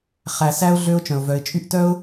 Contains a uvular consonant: yes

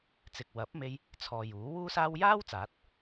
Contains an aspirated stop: yes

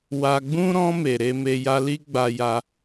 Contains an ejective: no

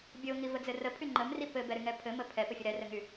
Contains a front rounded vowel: yes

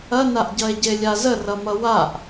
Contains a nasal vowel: no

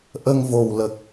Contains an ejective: no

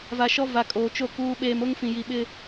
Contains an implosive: yes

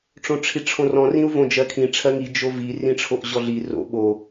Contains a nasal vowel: yes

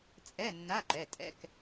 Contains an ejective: yes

